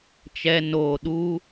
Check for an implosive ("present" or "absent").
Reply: present